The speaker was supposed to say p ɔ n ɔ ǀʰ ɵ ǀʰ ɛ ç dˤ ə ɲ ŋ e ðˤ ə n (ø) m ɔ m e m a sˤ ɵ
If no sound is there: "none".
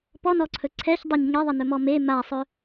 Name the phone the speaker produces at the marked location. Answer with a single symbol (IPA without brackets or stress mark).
ɵ